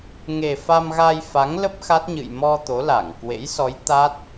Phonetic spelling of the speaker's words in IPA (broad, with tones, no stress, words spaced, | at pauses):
ŋe˨˩ fa˧mɣa˧jfa˨˦ŋlə˦˥p̚ xa˦˥t̚ɲɨ̰˧˨j mɔ˧ t̪o˨˦la˧˩ŋ kwḛ˧˥j sɔ˨˦j t̪a˦˥t̚